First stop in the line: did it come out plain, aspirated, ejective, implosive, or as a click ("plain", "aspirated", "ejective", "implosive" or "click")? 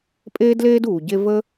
ejective